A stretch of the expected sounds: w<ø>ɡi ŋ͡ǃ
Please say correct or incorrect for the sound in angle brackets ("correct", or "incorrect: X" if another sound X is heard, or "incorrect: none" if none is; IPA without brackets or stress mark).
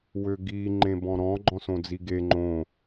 correct